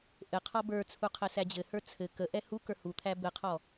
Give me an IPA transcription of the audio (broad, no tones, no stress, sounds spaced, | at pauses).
ʔ ɘ qʰ ɔ b ə˞ t͡sʰ u qʰ ɘ s æ d͡ʑ ɘ h ə˞ t͡sʰ ɘ k ə ʔ ɛ h u k ə˞ h u t̪ʰ æ b ɘ qʰ ɔ